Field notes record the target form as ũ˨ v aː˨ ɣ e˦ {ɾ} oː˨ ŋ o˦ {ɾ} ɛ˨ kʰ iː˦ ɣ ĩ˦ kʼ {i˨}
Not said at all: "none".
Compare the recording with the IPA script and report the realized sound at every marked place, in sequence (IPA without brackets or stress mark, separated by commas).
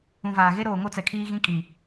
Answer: ɾ, t͡s, i˨